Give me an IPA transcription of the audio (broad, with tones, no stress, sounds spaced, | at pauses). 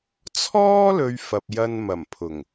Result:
t͡sʰ ɔː˥ l ɵ˨ ɥ f ɐ˨ p̚ j ɐ˧ n m ɐ˨˩ m pʰ ʊ˨˩ ŋ